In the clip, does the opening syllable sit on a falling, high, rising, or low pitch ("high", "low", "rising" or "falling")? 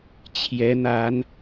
rising